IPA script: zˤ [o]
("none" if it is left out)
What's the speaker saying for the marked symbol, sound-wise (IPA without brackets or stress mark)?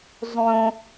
õ